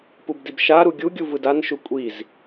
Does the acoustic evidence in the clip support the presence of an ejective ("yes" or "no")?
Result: yes